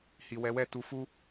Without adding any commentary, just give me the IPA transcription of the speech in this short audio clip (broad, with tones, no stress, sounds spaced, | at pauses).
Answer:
h i˨ w ɛ˨˦ w ɛ˦˨ t u˨ f u˧